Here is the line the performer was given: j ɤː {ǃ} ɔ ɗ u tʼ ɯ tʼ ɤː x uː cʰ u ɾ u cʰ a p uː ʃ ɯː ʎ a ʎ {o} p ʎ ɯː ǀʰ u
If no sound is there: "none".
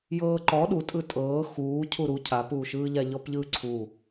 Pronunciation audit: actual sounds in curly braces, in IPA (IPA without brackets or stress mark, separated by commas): ǃ, ɔ